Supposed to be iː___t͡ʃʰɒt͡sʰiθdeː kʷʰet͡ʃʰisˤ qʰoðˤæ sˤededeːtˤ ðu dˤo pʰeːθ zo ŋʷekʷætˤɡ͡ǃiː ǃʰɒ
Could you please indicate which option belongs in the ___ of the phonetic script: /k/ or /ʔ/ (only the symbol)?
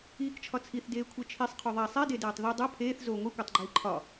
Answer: k